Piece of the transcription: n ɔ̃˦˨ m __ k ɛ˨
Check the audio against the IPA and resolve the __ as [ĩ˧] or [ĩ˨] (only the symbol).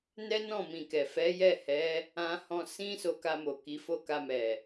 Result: ĩ˨